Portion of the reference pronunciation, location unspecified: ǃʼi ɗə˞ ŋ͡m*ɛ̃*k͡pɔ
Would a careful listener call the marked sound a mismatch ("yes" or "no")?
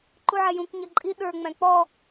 yes